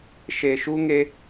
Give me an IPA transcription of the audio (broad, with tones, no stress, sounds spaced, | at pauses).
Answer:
ʃ e˨ ʃ u˦ ŋ e˦